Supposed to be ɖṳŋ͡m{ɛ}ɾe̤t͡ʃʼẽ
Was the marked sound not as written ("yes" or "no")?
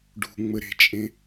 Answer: yes